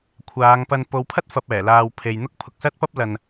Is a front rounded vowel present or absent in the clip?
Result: absent